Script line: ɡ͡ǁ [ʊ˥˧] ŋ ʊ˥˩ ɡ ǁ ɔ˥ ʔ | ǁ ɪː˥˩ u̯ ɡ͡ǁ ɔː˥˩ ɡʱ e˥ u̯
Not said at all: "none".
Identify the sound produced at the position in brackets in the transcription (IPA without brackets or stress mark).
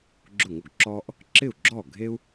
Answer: ʊ˥˩